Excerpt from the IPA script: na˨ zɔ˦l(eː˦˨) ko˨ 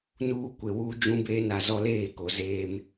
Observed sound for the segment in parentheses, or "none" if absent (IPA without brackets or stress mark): eː˦˨